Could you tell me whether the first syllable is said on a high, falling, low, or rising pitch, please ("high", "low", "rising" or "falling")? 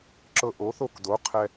high